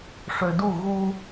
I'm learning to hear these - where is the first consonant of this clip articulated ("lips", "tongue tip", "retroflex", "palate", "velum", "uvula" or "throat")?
retroflex